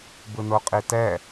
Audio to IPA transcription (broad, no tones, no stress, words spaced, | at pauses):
bɯnoqʼitɛ